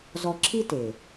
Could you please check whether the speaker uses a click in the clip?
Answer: yes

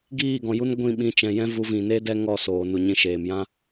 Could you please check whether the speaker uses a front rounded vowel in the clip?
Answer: no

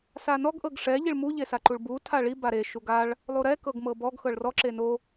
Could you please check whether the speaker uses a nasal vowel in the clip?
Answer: no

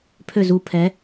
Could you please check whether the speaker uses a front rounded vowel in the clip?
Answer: yes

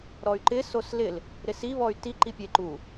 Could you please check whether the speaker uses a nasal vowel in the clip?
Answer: no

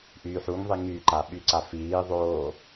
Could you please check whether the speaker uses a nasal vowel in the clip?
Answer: no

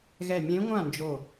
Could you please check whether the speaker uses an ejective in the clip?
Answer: no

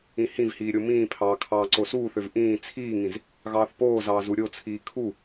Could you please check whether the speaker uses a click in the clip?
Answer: yes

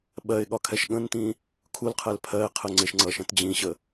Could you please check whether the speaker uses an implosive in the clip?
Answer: yes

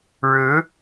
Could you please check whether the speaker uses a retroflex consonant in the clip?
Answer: yes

